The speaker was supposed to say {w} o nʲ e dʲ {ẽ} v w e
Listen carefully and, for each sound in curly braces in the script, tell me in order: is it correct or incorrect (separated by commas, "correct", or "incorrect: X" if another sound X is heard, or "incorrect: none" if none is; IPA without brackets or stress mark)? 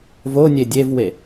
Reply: incorrect: v, incorrect: e